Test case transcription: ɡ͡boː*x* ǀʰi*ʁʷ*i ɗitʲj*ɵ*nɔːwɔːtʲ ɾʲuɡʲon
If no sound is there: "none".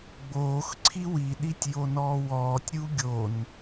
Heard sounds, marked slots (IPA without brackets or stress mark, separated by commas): x, w, o